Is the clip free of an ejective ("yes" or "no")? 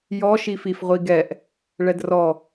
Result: yes